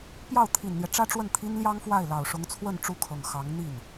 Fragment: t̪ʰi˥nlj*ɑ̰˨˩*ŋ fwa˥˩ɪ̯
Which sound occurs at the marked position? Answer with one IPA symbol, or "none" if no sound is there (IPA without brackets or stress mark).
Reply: ɑ˥